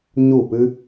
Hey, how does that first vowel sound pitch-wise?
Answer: falling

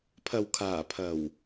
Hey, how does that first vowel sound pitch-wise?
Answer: low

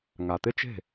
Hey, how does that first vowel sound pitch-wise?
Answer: low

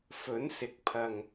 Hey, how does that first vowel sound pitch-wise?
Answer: rising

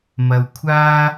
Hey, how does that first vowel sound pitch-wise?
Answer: low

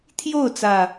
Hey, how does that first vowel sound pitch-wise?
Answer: falling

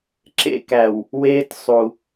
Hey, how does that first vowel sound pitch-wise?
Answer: high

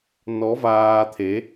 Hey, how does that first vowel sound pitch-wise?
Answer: rising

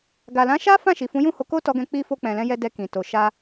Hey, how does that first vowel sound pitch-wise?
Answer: low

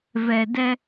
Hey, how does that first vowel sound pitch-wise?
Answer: low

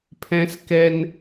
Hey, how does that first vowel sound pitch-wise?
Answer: high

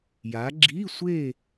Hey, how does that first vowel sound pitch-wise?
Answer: rising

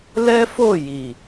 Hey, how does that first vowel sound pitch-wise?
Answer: high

